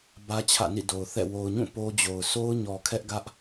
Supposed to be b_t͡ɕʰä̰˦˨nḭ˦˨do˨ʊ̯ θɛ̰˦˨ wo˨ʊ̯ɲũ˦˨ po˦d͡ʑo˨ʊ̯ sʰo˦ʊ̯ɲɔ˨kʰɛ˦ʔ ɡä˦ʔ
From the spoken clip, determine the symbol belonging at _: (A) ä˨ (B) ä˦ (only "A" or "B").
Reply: B